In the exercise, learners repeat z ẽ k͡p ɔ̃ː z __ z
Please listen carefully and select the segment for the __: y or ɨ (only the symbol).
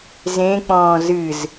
ɨ